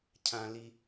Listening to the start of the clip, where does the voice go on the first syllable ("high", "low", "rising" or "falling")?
low